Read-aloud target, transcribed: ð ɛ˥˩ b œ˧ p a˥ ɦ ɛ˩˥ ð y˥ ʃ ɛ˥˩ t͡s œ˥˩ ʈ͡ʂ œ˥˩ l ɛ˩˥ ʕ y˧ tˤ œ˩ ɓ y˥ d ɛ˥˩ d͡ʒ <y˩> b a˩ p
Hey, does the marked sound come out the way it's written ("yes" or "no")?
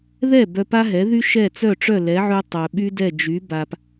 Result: no